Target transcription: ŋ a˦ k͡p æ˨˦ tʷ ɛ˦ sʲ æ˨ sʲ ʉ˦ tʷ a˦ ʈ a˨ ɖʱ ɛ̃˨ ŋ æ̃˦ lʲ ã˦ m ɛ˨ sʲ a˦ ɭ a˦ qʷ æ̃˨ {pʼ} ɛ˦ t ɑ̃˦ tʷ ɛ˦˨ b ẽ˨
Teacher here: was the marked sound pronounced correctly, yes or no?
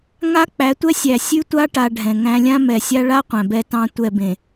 no